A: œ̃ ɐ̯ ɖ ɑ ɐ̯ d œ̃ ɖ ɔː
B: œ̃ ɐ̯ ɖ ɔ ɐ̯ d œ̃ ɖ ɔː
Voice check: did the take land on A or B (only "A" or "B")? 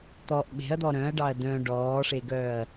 A